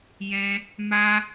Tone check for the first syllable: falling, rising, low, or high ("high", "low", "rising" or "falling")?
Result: high